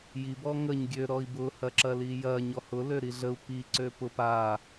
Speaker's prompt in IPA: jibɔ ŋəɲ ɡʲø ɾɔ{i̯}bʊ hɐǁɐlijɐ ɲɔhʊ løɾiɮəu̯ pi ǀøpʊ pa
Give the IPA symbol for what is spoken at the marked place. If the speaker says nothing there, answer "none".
i̯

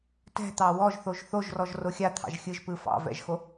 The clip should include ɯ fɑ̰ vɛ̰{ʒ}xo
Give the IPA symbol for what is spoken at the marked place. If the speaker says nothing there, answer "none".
ʒ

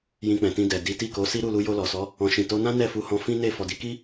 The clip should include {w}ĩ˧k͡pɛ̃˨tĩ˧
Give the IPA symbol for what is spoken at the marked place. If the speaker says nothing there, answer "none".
j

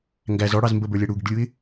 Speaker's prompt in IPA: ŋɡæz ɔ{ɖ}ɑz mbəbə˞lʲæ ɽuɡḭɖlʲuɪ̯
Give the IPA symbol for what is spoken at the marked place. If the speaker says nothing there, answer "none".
ɽ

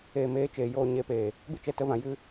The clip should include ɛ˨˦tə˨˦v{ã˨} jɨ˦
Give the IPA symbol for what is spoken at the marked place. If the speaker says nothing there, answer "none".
ã˨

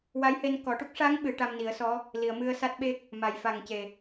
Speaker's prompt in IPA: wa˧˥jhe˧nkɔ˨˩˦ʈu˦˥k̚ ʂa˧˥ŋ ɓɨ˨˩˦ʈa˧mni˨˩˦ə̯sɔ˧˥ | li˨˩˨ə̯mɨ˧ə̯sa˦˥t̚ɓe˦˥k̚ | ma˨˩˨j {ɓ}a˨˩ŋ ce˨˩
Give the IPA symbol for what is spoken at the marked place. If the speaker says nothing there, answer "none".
f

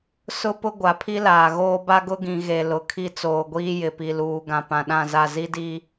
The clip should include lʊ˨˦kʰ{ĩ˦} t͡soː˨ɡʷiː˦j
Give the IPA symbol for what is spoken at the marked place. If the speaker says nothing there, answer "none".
i˦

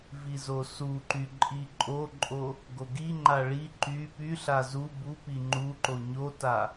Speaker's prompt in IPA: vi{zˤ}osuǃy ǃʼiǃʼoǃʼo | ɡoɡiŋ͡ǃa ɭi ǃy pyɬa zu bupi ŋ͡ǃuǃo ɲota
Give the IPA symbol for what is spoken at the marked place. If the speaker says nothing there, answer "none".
z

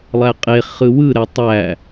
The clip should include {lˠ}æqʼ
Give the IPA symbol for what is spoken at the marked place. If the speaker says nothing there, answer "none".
lˠ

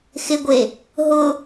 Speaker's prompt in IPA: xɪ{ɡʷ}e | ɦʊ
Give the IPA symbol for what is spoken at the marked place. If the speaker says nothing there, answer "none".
ɡʷ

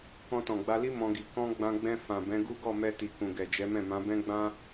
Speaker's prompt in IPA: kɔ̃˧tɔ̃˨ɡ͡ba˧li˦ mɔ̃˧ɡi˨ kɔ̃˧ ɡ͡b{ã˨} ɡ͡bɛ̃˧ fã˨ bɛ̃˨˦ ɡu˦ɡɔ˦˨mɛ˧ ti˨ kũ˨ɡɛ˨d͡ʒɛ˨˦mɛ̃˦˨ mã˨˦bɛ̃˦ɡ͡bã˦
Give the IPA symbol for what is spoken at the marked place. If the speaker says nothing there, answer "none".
ã˧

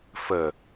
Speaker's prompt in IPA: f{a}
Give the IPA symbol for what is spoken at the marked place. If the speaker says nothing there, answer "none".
ə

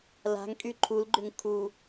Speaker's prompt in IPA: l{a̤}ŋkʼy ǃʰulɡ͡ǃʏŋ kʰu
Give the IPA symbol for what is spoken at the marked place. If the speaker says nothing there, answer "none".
a̤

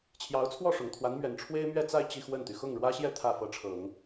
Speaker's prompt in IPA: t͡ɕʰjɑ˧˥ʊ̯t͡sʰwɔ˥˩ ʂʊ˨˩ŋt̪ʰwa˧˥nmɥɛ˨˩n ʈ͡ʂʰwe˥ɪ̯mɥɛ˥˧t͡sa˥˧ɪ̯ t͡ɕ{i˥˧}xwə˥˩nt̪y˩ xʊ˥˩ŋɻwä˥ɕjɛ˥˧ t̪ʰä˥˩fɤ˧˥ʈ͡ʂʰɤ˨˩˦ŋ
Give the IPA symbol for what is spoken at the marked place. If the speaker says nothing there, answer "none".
i˥˧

